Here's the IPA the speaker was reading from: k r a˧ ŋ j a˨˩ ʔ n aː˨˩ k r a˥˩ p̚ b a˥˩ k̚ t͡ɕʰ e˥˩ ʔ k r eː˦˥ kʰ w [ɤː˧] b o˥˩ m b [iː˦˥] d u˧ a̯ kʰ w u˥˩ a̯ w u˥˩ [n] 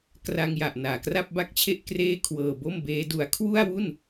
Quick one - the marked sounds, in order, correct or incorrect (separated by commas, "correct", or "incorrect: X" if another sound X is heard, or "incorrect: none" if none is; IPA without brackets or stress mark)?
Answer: correct, incorrect: eː˦˥, correct